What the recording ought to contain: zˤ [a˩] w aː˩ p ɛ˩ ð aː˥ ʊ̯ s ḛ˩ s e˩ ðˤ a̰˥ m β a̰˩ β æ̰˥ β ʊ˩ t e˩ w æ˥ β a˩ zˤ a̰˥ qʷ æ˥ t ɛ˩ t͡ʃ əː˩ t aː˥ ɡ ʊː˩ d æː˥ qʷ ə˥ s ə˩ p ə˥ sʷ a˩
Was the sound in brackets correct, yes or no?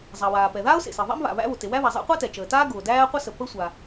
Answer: yes